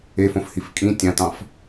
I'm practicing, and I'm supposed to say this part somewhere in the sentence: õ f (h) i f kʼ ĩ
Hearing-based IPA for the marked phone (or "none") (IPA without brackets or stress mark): h